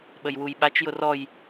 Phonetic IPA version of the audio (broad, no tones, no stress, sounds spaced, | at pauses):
ɓ ə j w u j ɓ a t͡ʃ j ʊ r ɔ j